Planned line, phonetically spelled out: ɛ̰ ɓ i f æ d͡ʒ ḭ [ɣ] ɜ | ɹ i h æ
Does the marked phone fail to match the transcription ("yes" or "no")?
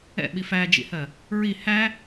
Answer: yes